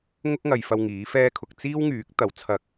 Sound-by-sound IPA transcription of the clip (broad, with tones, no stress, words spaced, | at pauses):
ŋʊ˥k̚ŋɐ˨jfɐ˧w ŋiː˨˥fɛː˥kʰʊ˧k̚ t͡siː˥wŋyː˨˥k̚ t̪ɐ˨˥wt͡sʰɐ˧k̚